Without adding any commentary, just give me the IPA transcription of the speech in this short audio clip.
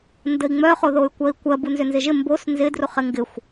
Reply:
n d ə i̯ ŋ͡m œ χ o ð o y̯ kʷ ɜ i̯ kʷ ɜ b u n z ʏ n z ɪ ʒ ɪ m b o s n z ɪ d r u χ ɪ ŋ ɡ ɪ xʷ

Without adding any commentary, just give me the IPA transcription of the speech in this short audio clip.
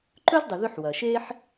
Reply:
ǃ ɵ˥ z dˤ ɨ˩ ð ʉ˧ ħ w ɐ˩ ʃ e˥ ħ

